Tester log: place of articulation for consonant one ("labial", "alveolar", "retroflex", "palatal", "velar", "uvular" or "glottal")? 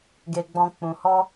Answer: velar